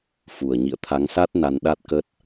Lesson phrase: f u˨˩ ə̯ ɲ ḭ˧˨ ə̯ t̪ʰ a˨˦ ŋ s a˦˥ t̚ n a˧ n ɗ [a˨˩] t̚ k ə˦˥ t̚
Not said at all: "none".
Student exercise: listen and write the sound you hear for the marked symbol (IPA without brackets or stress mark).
a˦˥